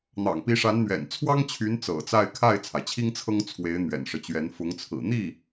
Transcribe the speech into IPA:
n̪ ɑ̰˨˩ ŋ p i˧˥ ʂ a˧˥ n n̪ ɥ ɛ̰˨˩ n t͡sʰ w ɑ˥ ŋ t͡ɕʰ y˧˥ n t͡s ɤ̰˨˩ t͡s a˥˧ ɪ̯ kʰ a˥˩ ɪ̯ t͡sʰ a˩ ɪ̯ t͡ɕʰ i˥ ŋ t͡sʰ ɤ˥ ŋ t͡sʰ w e˧˥ ɪ̯ n̪ ɥ ɛ̰˨˩ n ʂ ɤ˦ t͡ɕ ɥ ɛ˧˥ n f ʊ˧˥ ŋ t͡sʰ ɹ̩˨˩ n̪ i˥˩

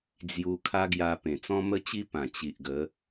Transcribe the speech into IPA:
d͡z j u˧ kʰ a˦ ɡ j a˧ p ẽ˨˩ t͡s ɔ̃˦ m ə˦ t͡ɕ i˦ p ã˨˩ t͡ɕ i˨ ʔ ɡ ə˨˦

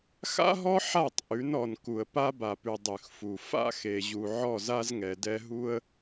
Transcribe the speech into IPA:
x a̰˦ ɦ ɔ˦ ħ a˦˨ tˤ ʔ ʉ˨˦ n ɔ˨ n k u˨ ə̯ p a˦ b a˨ p ʉ˨ dˤ ʉ˨ x f u˨ f a̰˦ x e˨ ʑ u˨ ʕ ɔ˦˨ z a˦ z ŋ ɛ˨ d ɛ˦ ɦ u˦ ə̯

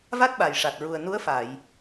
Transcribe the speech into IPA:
v a˦˥ t̚ ɓ a˨˩ j ʂ a˨˩ t̚ ɹ u˨˩ ə̯ n u˧˥ ə̯ f a˨˩˨ j

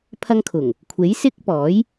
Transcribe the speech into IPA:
pʰ ɐ˧ ŋ kʰ ʊ˨˩ ŋ | kʷʰ e˨˥ j s ɪ˥ k̚ p ɔː˨˥ j

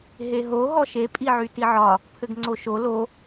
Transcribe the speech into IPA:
ɦ e ɦ o ɦ ɔ ʃ e pʼ i ʕ y t i ʕ ɒ | pʰ ɘ ɡ ŋ͡ǀ o ʃ o l o

